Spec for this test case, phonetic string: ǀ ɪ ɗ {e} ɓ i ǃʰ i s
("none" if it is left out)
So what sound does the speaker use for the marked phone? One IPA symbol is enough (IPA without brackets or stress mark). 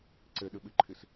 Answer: ɨ